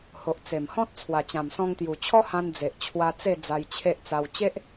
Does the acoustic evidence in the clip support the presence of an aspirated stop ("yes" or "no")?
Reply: yes